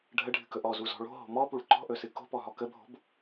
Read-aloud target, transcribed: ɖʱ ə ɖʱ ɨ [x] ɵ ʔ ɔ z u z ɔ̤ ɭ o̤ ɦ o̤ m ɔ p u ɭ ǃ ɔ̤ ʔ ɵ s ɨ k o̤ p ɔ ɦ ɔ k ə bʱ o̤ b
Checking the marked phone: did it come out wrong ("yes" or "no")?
yes